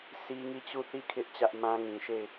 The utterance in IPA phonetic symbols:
sʰ i˦ ŋ i˦˨ t͡ɕ u˦˨ θ i˦˨ kʰ ɪ˦ ʔ t͡ɕ ä˦ ʔ m ã˦ ŋ ĩ˨ ʃ e˦˨ ɪ̯

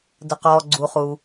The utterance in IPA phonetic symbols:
d ə˩ q ɔː˩ ɡ͡ǀ u˩ χ u˩

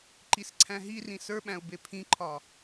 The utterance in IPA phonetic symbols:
ǃ i s ǀʰ æ̃ ɦ i r ĩ s ə˞ ɓ æ̃ ʊ̯ b e pʰ ĩ ǃʰ ɒ

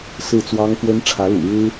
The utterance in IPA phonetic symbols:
s ɹ̩˥˩ t͡s w ɑ˥ ŋ x w ə˥ n ʈ͡ʂʰ ä˧˥ l ṵ˨˩ ɻ ɻ̩˥

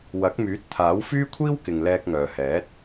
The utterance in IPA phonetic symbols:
w ɐ˨˥ k̚ m yː˨˥ t̚ t̪ʰ aː˨˥ w f yː˥ kʷʰ iː˥ w k ɪ˨ ŋ l ɛː˧ k̚ ŋ œː˨ h ɛː˨˥ t̚

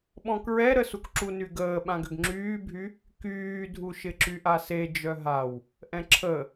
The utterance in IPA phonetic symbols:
ɓ ɔ̃ k ɹ ɛ ɾ ə s u k ǁ u n y ɡ əː ɓ ã ɡ ʏ ɡ ŋ͡ǁ yː bʱ y | k yː dʱ u ʃ ɪ ǁ y ʔ a s e d͡ʒ œ ɦ a w | ʔ ɛ̃ ǁʰ ə

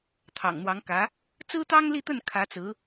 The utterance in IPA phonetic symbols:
t̪ʰ ɑ̰˨˩ ŋ n̪ w ɑ˧˥ ŋ k ä˧˥ | t͡s ɹ̩˥ t̪ ɑ˥ ŋ l i˥˧ t̪ ə˥˩ n kʰ ä˧˥ t͡s ɹ̩˧˥

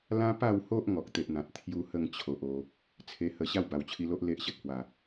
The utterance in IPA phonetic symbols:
l ã˦ p a˥˧ w h o˦ ʔ ŋ ɔ˨ k̚ t̪ e˨ ʔ n̪ ã˨ t̚ t̪ʰ j u˦ h ə˥˧ ŋ t͡ɕʰ o˨ ʔ o˧ | t͡sʰ e˧ h ə˧ ɕ a˥˧ w b a˨˩ w t͡ɕʰ i˧ l o˦ ʔ l e˦ ʔ ɕ ə˦ t̚ h w a˨˩

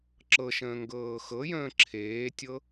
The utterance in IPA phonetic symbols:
ǁ ɤ ʃ ə̃ː ŋ ɡ ɤː x ɤ j ə̃ː ǁʰ eː tʲ ɤ

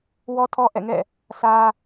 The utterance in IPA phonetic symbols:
w ɔ˦ tʰ ɔ˦ ʔ ɛ̰˦˨ ŋ ɛ̰˦˨ | sʰ ä˦

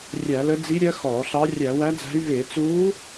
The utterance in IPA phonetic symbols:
rʲ æ˧˩˧ l ə˧˥ d͡z i˧˥ ɾʲ ɜ˧˥ x ɔː˧˩˧ ɬ ɑ˧˥ rʲ æ˧˩˧ w æ˧˥ d͡z æ̤˧˥ y̯ v ɪː˧˩˧ t͡s uː˧˥

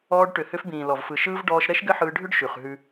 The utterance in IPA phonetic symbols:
ɔː˧ ɖ ʈ ʏ˨ h ʏ˧ f b ĩː˨ l ɔ˨ v f ɯ˨ ʃ ɯː˦ v ɖ ɔː˧ ʃ ɾ ɛ˦ ʃ ɡ ɘ˦ ħ ɯː˧ ɖʱ ʏ˦ ɖ ʃ ʉ˨ χ ɦ ʉ˧

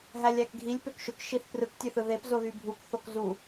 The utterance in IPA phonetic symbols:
ɦ æ lʲ æ k ɡʱ i lʲ p ø k ʃ ø k ʃ i θ p r ɯ k tʲ ø θ ɯ ð e p z o ð y bʱ u k θ o k z u

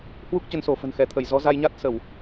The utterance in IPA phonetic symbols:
h w u˦˥ k̚ t͡ɕ ə˨˦ n s o˧˩ f ə̤˨˩ n x ɛ˧˩ t̪ʰ ə˧˩ j z ɔ˨˦ z a˧ j ɲ a˦˥ t̚ s ə˧˩˨ w

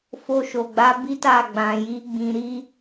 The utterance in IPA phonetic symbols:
f o˧ ʃ o˨ ɡ͡b a˨˦ b i˦ t a˦˨ ɡ͡b ã˨ j i˨˦ ɡ͡b ĩ˧ ɾ i˦

